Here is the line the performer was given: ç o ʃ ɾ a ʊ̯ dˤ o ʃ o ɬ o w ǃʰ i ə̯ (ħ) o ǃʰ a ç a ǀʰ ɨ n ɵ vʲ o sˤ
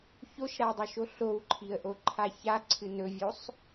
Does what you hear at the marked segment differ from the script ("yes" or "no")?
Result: yes